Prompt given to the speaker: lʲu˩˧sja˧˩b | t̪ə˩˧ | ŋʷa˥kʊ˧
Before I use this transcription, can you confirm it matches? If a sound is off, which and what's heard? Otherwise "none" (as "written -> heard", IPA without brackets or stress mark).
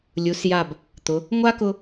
ə˩˧ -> ʊ˩˧